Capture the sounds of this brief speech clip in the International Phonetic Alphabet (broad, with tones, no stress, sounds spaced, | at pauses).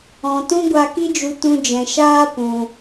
ɔ̃˨ t ũ˦ ɡʷ a˧ k i˦ d͡ʒ u˧ t ũ˧ d͡ʒ ɛ̃˨ ʃ aː˦ p ũ˧